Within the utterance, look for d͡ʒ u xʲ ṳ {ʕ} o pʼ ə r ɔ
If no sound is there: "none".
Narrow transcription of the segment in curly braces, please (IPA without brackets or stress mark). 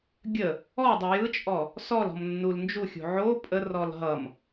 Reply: ʕ